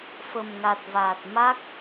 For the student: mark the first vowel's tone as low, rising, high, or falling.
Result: low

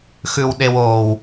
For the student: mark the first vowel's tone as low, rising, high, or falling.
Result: low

